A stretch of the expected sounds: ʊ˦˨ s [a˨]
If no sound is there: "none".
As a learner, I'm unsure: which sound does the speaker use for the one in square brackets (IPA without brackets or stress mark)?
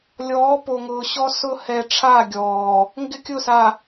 a˨